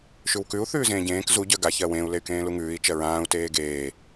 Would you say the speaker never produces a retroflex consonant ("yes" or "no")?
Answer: yes